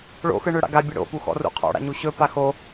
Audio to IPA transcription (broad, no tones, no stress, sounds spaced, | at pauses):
ɭ o̰ x ɯ ɳ ø ɽ a̰ ɡ a bʲ ɯ ɽ o̰ p u x ɔ̰ r ṵ qʰ ɔ̰ ɽ a̰ ɲ u ɕ ɵ p a x o